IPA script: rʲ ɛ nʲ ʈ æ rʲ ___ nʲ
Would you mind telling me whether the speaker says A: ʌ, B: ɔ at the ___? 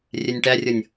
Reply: A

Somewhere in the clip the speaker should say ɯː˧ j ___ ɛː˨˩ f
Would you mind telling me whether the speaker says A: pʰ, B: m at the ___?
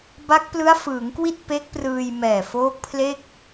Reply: B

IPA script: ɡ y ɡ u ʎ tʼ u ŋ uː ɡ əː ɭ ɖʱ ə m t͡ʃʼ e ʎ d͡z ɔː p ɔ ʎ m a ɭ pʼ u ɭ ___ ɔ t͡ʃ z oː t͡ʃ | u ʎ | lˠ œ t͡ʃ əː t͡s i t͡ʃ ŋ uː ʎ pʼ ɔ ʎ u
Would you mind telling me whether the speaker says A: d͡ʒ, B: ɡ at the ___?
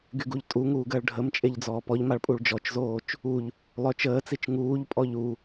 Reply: A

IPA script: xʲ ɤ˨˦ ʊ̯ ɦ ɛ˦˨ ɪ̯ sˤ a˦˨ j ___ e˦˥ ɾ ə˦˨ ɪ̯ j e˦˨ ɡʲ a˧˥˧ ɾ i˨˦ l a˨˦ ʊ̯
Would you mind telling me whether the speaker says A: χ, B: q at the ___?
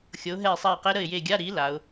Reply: B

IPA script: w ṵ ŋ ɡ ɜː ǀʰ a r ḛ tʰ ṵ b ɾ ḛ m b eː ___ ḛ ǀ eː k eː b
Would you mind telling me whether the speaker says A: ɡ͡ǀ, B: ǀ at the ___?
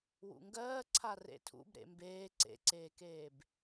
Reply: B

